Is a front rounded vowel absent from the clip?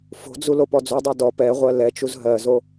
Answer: no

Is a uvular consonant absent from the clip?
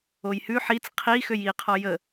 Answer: no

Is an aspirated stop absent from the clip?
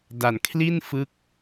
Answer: no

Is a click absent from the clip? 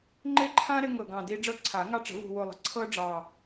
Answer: no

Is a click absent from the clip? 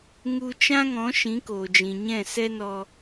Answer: yes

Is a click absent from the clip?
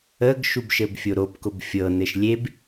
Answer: yes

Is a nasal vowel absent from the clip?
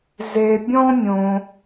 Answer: no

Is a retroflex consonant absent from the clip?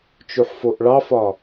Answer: no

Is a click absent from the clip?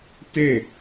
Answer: yes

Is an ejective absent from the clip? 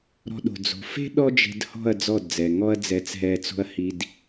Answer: yes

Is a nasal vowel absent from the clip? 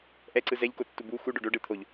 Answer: yes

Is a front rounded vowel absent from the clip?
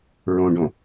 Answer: yes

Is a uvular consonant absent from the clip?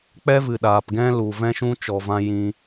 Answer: yes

